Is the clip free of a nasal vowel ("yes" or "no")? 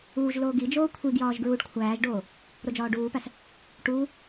yes